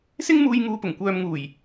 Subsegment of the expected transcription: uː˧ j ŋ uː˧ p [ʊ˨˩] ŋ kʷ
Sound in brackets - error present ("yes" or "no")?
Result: no